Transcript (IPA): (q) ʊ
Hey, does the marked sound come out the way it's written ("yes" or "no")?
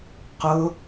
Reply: yes